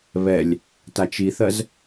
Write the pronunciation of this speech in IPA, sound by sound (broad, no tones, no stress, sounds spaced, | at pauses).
β ɛ lʲ | t a t͡ʃ i θ ɜ z